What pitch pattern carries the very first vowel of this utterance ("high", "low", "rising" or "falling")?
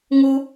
high